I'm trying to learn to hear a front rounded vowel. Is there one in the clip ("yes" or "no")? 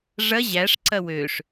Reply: yes